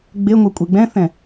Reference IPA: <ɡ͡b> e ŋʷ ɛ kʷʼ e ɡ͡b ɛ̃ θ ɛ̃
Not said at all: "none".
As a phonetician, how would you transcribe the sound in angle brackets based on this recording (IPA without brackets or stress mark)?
ɡ͡b